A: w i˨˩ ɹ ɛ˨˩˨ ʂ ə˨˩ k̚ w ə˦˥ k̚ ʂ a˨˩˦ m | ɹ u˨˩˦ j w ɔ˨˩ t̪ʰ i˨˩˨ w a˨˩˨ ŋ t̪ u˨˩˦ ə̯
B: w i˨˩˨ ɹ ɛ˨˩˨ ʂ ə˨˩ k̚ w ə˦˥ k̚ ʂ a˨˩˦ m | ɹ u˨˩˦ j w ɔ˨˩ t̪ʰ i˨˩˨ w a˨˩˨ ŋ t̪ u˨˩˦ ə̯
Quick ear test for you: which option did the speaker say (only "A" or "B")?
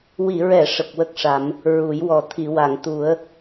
B